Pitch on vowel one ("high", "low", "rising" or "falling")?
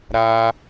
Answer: high